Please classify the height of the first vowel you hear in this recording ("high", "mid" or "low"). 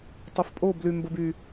mid